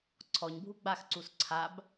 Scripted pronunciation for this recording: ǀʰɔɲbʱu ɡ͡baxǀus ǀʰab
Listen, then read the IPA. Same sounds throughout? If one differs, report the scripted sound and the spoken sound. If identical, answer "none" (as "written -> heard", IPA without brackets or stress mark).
none